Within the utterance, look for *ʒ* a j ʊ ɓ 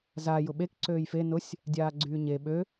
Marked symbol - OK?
no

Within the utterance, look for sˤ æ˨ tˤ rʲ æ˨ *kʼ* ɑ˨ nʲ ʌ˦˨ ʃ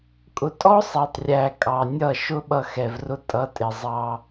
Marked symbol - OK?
yes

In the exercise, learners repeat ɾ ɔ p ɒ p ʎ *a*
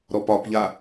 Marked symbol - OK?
yes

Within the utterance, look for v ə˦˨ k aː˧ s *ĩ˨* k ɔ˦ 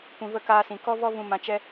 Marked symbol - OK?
yes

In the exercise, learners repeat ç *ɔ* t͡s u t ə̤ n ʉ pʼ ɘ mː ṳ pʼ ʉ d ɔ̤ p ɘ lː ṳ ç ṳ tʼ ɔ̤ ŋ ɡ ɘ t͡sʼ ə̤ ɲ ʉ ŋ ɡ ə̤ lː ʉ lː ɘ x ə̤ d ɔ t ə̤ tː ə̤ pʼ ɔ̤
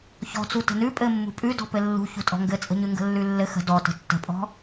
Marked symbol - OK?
no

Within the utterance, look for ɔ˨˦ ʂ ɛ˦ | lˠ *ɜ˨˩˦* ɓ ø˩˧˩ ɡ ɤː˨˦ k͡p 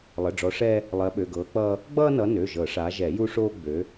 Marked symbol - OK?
no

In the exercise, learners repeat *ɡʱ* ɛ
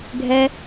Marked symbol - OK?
yes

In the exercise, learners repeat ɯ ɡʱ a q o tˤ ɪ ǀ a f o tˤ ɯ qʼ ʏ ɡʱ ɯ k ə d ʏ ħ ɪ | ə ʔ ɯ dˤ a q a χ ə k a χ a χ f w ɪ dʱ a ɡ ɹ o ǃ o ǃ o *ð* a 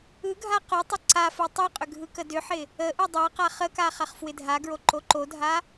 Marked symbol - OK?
no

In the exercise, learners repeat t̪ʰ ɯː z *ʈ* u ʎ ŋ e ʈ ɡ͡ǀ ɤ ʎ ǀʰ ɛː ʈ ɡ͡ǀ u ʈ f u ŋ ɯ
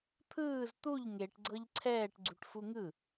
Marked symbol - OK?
no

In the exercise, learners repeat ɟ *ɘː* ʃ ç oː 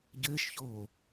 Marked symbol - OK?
yes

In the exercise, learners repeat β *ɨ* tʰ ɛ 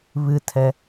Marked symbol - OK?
yes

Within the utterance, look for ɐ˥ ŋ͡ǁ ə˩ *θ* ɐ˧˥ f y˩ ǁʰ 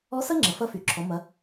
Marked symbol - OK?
no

